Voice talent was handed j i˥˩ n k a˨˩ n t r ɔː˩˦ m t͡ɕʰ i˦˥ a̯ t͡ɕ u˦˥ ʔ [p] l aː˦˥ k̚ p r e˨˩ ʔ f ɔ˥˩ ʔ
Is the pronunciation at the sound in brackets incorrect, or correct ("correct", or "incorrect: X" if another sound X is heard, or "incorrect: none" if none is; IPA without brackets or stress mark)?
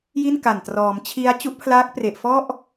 incorrect: pʰ